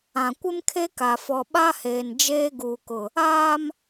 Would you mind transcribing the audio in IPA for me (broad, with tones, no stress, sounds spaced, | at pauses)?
ã˨ kʷ ɪ˦ m kʰ e˦ k a˨ f ɔ˨ ɓ a˦ h eː˨ n d͡ʒ eː˦ ɡ uː˨ k ʊ˨ | aː˦ m